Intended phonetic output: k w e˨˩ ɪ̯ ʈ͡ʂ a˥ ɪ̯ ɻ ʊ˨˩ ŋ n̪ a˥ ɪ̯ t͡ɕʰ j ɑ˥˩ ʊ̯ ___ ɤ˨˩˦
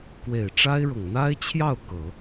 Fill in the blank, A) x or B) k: B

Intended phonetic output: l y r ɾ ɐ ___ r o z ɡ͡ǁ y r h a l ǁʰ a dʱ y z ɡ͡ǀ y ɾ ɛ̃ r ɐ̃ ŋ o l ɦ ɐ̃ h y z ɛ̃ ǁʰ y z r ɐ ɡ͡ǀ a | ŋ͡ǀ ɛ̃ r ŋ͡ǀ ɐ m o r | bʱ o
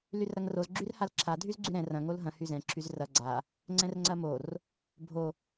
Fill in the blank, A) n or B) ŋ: B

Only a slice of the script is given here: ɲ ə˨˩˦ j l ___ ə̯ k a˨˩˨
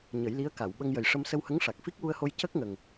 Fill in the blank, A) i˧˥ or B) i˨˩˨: A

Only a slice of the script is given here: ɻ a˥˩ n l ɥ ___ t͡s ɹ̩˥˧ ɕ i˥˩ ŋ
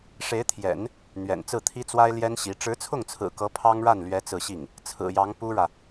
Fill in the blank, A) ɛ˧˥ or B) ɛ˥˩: A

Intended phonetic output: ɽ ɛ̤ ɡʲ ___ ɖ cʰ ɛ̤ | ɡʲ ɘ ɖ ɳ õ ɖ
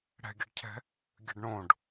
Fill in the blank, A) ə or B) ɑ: A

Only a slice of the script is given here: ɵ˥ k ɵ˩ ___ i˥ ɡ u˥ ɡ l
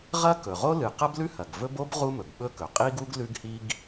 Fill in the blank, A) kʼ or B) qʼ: B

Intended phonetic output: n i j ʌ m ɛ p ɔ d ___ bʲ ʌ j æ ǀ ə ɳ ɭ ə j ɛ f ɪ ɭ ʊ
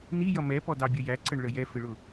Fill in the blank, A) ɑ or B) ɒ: A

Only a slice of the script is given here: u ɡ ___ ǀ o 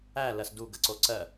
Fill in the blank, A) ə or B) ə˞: A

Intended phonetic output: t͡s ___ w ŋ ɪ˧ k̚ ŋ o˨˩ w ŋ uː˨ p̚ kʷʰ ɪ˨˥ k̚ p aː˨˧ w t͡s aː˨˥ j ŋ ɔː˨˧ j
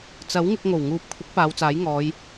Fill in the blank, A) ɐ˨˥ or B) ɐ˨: A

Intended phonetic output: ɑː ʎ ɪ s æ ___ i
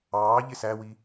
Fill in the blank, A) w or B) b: A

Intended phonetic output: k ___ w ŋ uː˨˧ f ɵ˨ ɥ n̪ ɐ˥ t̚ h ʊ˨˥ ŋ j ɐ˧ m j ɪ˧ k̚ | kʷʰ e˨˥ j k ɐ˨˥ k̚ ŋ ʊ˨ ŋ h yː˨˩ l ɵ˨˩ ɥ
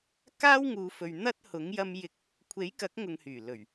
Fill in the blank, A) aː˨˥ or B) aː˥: B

